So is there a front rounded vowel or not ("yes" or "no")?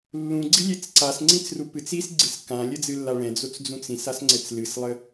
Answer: no